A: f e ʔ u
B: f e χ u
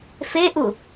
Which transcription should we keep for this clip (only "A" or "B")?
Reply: A